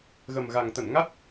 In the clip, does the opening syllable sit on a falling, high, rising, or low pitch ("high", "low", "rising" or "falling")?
low